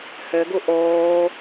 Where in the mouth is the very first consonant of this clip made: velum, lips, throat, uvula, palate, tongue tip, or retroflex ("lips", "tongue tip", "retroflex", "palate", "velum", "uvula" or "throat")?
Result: throat